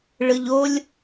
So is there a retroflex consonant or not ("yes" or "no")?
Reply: yes